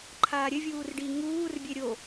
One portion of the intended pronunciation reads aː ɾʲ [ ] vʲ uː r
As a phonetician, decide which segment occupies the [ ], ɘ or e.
ɘ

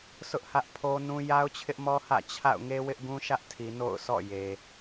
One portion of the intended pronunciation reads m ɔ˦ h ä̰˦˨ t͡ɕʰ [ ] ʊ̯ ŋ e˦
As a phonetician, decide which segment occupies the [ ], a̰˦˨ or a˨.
a̰˦˨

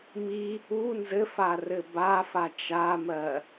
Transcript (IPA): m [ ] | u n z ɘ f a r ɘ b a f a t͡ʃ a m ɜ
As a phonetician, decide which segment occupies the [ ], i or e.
i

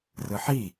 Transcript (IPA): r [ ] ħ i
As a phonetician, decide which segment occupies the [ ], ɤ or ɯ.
ɯ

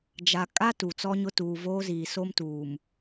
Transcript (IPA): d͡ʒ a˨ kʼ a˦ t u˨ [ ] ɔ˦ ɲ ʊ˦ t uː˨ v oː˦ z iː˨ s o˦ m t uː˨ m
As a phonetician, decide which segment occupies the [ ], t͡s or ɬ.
t͡s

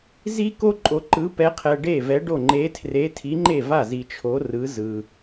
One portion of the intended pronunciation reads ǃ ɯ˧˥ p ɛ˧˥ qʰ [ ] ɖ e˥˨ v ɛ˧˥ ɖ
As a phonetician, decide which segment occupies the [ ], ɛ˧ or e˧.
ɛ˧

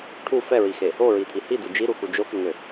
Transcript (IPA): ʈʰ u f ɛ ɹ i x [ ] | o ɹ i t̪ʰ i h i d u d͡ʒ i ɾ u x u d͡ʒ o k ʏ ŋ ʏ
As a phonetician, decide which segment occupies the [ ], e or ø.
e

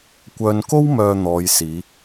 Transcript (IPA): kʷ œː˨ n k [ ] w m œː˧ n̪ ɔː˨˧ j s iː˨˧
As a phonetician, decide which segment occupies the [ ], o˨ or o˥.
o˥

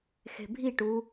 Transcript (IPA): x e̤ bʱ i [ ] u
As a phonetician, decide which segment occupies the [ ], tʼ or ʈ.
ʈ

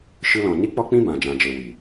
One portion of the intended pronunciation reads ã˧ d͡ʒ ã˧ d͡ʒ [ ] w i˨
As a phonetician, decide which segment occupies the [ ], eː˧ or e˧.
e˧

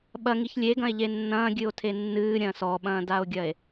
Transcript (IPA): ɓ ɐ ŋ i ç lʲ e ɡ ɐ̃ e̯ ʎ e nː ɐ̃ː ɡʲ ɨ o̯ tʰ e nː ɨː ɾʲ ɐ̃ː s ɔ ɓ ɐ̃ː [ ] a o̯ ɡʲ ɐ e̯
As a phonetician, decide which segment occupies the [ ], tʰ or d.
d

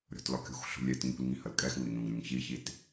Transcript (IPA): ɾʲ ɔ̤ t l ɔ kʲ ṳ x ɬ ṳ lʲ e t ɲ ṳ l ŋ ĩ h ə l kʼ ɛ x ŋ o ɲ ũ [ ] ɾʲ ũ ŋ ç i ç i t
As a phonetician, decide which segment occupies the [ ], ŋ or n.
ŋ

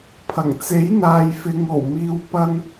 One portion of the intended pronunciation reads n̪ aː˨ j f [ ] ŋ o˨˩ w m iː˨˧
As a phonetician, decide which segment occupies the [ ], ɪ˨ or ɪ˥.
ɪ˨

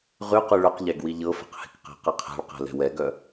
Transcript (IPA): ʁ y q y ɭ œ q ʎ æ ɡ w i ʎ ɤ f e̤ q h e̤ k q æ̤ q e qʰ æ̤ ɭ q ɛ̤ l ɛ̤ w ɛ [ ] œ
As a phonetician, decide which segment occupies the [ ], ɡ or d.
ɡ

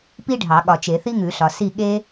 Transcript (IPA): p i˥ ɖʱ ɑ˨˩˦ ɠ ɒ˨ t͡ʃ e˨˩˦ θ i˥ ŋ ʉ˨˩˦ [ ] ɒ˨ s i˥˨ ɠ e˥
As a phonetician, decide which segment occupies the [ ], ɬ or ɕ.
ɬ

